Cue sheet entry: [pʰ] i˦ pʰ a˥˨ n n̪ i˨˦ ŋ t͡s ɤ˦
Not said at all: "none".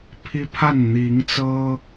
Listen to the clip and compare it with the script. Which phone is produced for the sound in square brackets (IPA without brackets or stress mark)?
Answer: pʰ